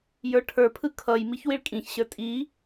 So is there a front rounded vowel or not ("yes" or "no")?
no